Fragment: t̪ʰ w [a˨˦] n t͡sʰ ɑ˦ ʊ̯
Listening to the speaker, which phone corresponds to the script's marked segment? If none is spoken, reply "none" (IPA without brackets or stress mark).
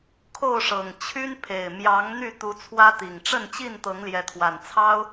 a˨˩